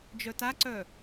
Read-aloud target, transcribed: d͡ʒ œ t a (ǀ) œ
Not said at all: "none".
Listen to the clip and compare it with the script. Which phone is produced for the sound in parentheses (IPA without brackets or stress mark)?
ǀ